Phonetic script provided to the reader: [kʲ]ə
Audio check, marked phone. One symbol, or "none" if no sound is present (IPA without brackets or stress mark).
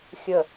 xʲ